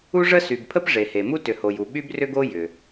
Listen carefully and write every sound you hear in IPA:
u˥ʐə˥ sy˩bpʰə˥p ʐe˩he˩mu˥ tʏ˩ho˩ju˩ ɓy˥brʏ˥ɡo˥ jʏ˩

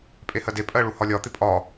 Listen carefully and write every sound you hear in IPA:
pʼehɜde pʼɜɭuhɒlʲɒ t̪ɪpʼɒ

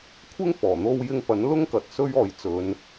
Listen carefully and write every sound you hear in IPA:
kʷʰɪ˥ŋfɔː˨˩ n̪o˧wjɪ˧ŋ pɐ˨˥nlʊ˥ŋkɐ˨t̚ sɵ˥ɥ ɔː˨˧jt͡sɵ˨˧n

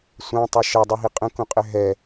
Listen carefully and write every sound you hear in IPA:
sʷãtˤɛ ʃɛdˤuɦi qʼə̃kũqʼɘ ɦɛ

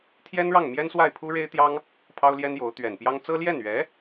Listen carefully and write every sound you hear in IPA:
t̪ʰjɛ˥nɻɑ˥˩ŋmjɛ˥n swa˥˩ɪ̯pʰu˥ɻe˥ɪ̯t̪jɑ˥ŋ | pʰɑ˥ʊ̯ljɛ˥njo˧˥ʊ̯ t̪ɥɛ˨˩npjɑ˥ŋ t͡sɤ˥ ljɛ˥˩nɥɛ˧˥

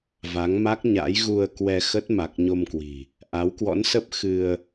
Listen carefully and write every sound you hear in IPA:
va˨˦ŋma˦˥k̚ ɲa̰˧˥jɣu˧ə̯kwɛ˧xə˦˥t̚ ma˨˩k̚ɲo˧mkwi̤˨˩ | ʔa˨˦wkwɔ̰˧˥nsə˦˥p̚ xɨ˧ə̯

